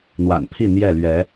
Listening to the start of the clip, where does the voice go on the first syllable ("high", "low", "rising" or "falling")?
low